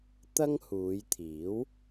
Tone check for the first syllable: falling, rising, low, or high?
high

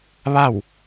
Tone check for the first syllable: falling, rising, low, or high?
falling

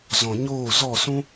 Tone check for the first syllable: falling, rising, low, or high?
low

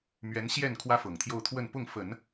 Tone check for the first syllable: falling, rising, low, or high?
rising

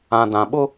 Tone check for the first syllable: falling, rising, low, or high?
low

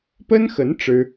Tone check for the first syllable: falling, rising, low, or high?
high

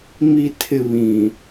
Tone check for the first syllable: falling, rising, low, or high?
low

